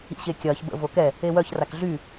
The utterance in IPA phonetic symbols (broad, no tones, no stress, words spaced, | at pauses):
ḭɕekʲɐːç bə̰ vokɛ | ewœç rakɮy